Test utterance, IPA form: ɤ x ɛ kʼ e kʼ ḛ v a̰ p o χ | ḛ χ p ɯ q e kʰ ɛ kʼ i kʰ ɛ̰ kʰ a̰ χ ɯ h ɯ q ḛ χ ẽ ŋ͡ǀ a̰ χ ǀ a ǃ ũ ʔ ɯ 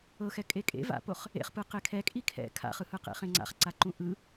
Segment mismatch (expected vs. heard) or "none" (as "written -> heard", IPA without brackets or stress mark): none